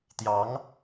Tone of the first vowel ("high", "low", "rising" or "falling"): rising